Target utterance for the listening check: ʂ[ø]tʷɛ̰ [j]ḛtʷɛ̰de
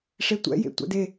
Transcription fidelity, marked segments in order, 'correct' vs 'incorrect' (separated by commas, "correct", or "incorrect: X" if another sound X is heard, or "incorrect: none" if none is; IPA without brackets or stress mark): incorrect: e, correct